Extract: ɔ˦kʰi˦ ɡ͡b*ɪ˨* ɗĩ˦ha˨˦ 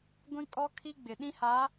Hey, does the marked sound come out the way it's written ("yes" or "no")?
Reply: yes